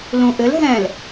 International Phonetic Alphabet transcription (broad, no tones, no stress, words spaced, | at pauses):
lũʔɘl ɦɛ̃l